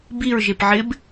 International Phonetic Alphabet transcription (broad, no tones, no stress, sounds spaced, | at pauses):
b i ɹ ʒ e p ʕ ɪ b